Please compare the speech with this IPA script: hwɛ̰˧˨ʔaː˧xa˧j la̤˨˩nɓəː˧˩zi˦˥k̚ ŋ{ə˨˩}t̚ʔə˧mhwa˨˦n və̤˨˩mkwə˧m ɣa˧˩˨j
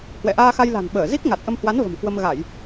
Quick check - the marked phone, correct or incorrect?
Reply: incorrect